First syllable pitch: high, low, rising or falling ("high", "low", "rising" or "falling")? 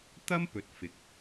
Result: high